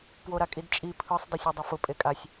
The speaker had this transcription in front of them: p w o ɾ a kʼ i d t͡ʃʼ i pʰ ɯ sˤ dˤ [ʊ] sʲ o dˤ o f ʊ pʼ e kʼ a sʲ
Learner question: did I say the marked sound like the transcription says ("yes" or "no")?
yes